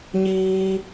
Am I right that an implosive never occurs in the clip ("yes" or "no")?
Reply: yes